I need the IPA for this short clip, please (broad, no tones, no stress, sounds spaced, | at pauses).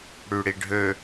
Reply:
ɽ y ɽ i ɖʱ ø